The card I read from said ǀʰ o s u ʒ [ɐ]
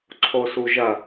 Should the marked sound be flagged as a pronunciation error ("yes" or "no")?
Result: no